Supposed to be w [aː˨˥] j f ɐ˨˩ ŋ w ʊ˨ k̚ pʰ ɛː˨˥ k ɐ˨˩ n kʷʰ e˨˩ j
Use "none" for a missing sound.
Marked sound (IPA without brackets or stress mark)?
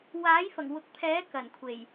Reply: aː˨˥